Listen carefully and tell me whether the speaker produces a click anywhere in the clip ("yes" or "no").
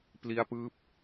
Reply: no